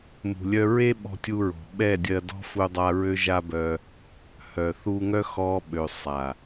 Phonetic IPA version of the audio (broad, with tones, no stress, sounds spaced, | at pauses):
m ṳ˨ lʲ œ˧ ɹ e˦ ɓ ɔ̤˧ tʲ u˧ ɹ o̤˨ ɓ ɛ˦˨ dʲ ɜ˧ d ɔ̤˦ f u˦ dˤ a˦ ɹ ø˦ ʒ a˦ b œ˧ | h œ˨ θ u˧ ŋ œ˦ x ɔ˧ ɓ ø˨ sˤ a˨